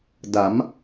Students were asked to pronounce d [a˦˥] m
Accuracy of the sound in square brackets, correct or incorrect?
incorrect